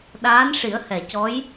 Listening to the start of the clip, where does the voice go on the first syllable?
rising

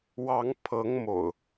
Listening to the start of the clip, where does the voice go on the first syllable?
rising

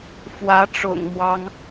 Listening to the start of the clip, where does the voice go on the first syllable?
rising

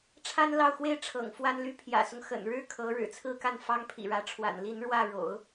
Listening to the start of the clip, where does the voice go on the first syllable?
high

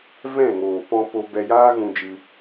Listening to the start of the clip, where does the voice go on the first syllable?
falling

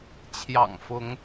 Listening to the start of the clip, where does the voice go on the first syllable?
low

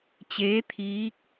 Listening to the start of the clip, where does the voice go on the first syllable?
rising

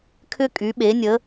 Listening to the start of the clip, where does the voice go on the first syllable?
high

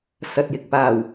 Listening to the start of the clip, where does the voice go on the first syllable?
low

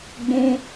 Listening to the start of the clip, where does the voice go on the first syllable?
high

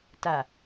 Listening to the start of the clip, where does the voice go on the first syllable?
low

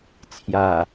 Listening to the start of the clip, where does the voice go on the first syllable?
low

